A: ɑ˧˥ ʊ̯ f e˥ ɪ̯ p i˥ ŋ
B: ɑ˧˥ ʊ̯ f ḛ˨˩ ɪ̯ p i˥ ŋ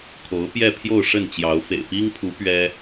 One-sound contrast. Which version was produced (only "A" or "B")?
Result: B